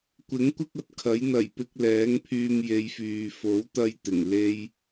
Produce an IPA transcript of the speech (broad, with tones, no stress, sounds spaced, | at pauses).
kʷ ɪ˨˥ ŋ kʷ ɪ˥ k̚ ɐ˨˥ t̚ kʰ ɐ˨˥ j n̪ ɐ˨˩ j p ɪ˧ k̚ l ɛː˨˥ ŋ pʰ yː˧ m j e˨˧ j f yː˨ f o˨˥ w t̪ ɐ˧ j t̪ ɪ˨˩ ŋ l e˥ j